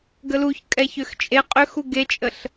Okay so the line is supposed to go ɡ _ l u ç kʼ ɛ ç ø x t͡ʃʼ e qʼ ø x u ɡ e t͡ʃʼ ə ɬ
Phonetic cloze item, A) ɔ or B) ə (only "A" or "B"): B